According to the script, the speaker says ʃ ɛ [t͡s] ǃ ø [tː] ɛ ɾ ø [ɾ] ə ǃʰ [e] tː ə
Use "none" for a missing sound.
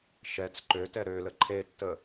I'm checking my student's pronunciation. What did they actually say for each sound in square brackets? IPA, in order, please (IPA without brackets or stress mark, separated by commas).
t͡s, t, l, e